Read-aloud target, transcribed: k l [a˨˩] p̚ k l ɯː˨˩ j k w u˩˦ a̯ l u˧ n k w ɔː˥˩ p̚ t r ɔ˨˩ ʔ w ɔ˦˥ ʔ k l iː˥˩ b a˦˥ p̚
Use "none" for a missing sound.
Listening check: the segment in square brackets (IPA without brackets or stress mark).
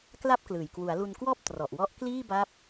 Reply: a˥˩